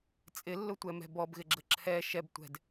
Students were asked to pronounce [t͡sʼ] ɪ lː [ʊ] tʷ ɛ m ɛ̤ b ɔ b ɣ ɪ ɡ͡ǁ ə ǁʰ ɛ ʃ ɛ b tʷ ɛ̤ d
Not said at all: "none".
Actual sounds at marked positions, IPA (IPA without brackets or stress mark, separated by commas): t͡sʼ, ʊ